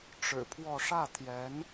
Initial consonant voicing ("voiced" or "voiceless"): voiceless